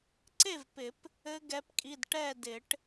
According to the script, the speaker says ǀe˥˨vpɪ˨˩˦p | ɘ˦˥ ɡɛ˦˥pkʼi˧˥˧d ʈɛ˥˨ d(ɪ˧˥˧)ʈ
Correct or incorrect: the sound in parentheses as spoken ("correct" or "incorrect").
incorrect